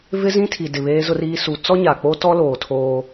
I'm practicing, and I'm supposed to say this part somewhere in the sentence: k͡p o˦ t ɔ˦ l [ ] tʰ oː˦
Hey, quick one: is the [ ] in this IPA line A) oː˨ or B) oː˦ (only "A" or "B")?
A